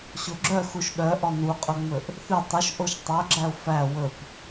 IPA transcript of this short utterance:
ɕoɡ͡ǁœxuʃ ɗœ ʔɔnuqʼɵŋ͡mɵʔ | θy tˤɵʃ ʔoʃtˤœɡ͡ǁæʊ̯ fæ wɵp

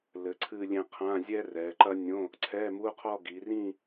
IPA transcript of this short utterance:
lɘ˩˧ǀʰɨ˥˧lʲẽ˥˧ qʰã˧˥˧zʲɛ˥ rɛ˩˧ǃɐ˥ nʲõ˧˥˧ | ǀʰɛ˧˥˧mu˧˥˧qʰɔ˥˧ ɡi˩˧rĩ˥˧

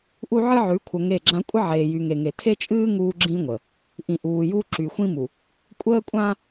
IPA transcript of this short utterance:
ʔu˦ʕɨ˦ʕʉ˨˦ kʷʰə˨ŋe˦˨ɡ͡ǁã˦ kʷʼə˦ ʕeː˨jy˨ŋe˨ŋe˨ tʰe˦t͡ʃʼɨː˦ ŋuː˦ɡ͡ǁĩ˦ŋʷə˨ | ʔĩ˨ʔuː˨juː˦ ǁy˨xʷĩ˦mu˨ | kʷʼəː˦kʷʼã˦

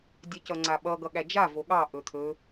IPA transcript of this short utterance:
dʲɛcʌŋ͡ǀaɓʌ ɡʌɠæd͡ʒa voɠɑ ʔɵt̪ʰɵ

